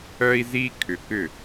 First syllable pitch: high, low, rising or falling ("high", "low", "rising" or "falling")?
high